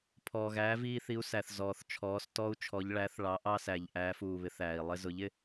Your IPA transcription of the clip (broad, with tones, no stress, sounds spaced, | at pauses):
pʰ ɔː˩ ɣ æː˩˥ v iː˧ θ i˩˥ u̯ s æ˩ θ z ɔː˩ θ t͡ʃʰ ɔː˩˧ s t ɔ˧ u̯ t͡ʃʰ ɔ˩˧ ʎ ɭ æ˩˥ θ ɭ ɑ˩˧ ʔ ɑ˧ s æ˩ ʎ ʔ æː˩˧ f uː˩ β ɪ˩˧ θ æː˩ i̯ lˠ ɪ˧ z ʊ˩˥ ʎ ɪ˧